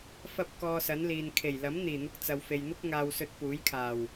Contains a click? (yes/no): no